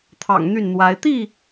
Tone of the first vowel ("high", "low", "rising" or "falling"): low